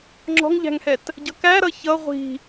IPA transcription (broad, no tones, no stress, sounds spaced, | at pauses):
ŋ͡ǁ ɔ̤ ŋ ʎ æ̤ ŋ h ɛ t | ɟ ʌ k æ ɾ ʌ ç ʌ ʁʷ i̤